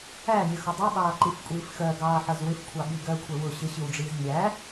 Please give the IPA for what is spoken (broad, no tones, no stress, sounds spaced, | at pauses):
æ nʲ ə x ʊ dˤ i ɓ ɑː ǃ i f kʷʼ iː f x ɜ ɡ ɑː ħ ʌ z w ɪ f kʷʰ ɑ ɓ i ɡ ɜ kʷʰ ɛ w ʊ ɕ ɪ ɕ i w ɖ͡ʐ iː z nʲ æ